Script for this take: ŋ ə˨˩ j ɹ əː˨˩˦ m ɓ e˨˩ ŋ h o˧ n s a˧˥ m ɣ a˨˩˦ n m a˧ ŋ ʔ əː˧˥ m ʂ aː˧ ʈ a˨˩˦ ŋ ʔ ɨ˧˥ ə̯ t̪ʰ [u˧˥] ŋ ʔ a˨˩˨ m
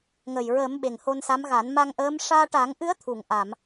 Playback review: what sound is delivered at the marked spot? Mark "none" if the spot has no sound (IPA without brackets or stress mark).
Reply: u˨˩˨